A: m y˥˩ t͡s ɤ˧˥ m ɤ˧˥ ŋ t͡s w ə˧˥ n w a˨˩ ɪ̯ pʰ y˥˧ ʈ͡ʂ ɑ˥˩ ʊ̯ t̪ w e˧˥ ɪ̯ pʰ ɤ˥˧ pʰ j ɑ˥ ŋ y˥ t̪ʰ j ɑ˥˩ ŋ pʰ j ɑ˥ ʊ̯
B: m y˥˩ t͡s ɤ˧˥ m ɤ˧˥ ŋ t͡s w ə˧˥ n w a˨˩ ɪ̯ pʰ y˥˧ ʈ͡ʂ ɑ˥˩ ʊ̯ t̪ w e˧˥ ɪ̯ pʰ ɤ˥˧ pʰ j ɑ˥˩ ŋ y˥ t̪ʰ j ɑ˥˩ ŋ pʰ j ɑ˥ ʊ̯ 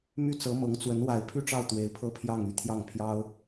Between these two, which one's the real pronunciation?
B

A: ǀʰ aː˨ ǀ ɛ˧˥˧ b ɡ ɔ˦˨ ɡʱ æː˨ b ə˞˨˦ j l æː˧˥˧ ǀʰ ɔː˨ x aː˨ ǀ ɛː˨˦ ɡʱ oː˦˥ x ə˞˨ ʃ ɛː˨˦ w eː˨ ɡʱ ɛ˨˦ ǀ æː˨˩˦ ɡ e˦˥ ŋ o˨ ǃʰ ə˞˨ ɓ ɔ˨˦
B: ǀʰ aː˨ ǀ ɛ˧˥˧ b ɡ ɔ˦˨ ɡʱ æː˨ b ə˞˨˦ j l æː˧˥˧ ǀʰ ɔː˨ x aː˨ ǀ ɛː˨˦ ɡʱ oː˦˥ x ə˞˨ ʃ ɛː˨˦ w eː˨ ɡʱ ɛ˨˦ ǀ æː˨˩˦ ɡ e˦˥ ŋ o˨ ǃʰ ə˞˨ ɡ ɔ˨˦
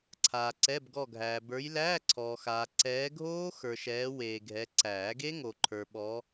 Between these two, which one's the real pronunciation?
A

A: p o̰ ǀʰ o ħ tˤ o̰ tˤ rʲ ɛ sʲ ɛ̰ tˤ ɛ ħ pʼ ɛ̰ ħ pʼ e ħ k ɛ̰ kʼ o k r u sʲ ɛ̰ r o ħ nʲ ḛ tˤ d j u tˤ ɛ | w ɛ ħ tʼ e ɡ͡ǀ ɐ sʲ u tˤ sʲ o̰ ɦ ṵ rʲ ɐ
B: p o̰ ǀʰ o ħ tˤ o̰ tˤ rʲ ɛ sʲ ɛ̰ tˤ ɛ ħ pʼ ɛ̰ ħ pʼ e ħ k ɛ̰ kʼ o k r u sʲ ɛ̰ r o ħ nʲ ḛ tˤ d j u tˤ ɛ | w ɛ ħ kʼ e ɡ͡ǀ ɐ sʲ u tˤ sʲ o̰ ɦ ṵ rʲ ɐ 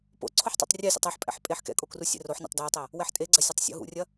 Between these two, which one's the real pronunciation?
A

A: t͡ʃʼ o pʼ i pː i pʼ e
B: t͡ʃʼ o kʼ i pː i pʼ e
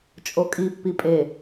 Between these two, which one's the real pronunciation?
B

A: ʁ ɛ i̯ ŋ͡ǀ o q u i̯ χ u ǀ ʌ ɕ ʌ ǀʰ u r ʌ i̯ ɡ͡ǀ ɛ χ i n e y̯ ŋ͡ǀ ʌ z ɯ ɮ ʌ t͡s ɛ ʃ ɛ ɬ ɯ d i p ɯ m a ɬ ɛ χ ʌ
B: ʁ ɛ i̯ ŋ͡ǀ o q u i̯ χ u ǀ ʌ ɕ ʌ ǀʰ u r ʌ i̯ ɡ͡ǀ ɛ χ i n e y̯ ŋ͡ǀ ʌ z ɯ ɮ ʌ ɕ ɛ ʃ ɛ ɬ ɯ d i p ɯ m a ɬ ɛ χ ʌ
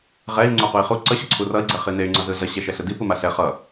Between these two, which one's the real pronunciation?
B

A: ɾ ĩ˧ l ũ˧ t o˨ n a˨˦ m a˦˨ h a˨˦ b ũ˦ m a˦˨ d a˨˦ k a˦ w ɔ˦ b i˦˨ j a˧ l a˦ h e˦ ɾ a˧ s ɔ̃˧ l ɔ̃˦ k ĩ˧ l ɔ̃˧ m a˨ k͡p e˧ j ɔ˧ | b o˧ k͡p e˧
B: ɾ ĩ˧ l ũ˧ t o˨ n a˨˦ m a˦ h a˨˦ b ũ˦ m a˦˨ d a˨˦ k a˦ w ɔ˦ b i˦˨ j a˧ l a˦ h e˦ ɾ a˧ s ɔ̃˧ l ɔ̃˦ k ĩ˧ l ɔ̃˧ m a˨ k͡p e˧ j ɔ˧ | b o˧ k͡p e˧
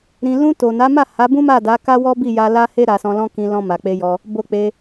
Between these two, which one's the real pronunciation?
A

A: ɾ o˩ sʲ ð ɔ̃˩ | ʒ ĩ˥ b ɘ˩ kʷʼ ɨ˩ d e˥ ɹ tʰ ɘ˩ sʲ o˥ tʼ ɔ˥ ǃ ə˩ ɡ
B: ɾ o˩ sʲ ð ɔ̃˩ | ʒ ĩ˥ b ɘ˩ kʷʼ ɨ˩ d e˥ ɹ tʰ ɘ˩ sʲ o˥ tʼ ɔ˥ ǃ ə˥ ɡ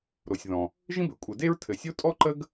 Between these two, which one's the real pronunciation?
B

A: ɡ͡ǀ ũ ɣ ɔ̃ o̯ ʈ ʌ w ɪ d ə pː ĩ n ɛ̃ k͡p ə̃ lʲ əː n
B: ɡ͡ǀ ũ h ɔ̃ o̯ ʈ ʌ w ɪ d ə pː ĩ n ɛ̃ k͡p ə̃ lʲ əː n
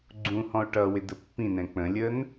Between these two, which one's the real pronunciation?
B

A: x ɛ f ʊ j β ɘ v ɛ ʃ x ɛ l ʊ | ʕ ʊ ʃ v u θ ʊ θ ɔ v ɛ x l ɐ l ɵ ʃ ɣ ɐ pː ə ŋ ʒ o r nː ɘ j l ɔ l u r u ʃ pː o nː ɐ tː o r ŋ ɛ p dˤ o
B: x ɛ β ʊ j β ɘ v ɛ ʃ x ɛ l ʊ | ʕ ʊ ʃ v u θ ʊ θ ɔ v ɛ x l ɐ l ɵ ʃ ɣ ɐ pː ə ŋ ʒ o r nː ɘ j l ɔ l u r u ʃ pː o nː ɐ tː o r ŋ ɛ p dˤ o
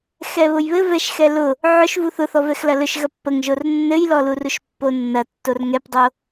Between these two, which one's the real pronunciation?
B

